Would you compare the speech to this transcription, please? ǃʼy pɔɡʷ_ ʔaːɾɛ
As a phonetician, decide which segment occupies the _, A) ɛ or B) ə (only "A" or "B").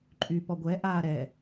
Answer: A